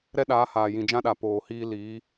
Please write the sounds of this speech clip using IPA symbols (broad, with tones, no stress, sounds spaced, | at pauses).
ɾ ɛ˦ ɗ aː˨˦ h aː˨ j ĩ˨ d͡ʒ ã˧ ɗ a˨ p oː˨ h iː˧ l iː˨˦